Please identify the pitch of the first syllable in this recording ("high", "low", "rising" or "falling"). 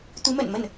rising